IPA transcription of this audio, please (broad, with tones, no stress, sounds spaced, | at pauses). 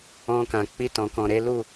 ɔ̃˧ k ã˨ k͡p i˧ t ɔ̃˨ k ɔ̃˨ ɾ e˨˦ l u˦˨